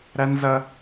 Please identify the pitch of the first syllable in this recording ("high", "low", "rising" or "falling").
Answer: high